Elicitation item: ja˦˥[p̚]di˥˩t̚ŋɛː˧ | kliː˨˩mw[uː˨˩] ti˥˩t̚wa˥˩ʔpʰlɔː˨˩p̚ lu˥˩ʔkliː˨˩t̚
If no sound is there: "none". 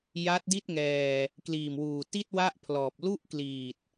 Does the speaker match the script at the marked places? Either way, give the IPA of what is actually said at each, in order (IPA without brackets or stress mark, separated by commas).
t̚, uː˨˩